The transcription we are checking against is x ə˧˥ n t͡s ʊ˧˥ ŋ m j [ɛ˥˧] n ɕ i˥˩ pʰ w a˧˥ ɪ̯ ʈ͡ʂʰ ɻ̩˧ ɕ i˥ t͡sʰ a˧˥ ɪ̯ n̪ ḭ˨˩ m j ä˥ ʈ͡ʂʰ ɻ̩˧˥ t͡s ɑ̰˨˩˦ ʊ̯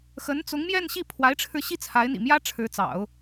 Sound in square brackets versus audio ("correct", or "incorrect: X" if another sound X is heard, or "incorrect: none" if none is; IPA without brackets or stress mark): correct